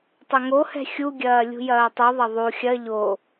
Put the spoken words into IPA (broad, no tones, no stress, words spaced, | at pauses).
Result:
tˤɐŋohɛ̤ xʲuɡʲɐː lʲṳjɐːtˤuðˤɐ ðˤu xʲɐ ʎo